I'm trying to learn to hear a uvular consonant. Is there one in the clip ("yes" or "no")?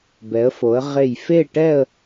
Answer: yes